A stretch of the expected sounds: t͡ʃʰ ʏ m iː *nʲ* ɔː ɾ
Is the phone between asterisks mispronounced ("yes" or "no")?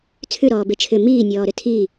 no